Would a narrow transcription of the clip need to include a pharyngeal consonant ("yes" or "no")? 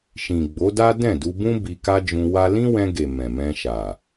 no